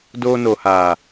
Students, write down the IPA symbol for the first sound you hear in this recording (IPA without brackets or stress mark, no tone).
d